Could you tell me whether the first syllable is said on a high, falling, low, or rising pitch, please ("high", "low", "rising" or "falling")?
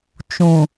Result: low